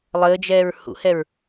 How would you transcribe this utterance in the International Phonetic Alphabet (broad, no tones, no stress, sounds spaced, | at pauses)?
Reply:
lˠ əː d͡ʒ ɛː ɹ h ṵ h ɛ ɹ